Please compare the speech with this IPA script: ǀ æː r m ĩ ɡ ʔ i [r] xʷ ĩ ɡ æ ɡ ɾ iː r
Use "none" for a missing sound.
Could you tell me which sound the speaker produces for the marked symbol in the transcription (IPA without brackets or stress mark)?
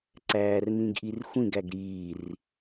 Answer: r